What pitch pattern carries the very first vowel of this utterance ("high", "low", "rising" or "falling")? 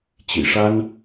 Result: low